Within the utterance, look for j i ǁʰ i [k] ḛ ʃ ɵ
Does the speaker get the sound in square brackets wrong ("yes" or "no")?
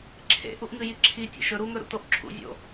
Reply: yes